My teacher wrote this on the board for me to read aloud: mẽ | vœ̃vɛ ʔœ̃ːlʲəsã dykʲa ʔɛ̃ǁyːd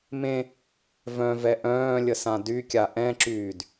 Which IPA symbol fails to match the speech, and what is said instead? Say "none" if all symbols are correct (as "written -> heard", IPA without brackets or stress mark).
none